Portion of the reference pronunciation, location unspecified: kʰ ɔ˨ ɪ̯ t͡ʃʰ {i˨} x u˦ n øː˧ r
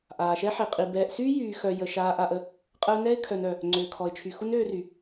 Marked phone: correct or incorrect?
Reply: incorrect